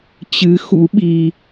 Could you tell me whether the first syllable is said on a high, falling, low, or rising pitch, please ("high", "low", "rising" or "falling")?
rising